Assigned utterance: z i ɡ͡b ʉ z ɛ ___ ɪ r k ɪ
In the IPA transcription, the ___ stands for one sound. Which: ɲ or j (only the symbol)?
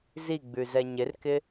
ɲ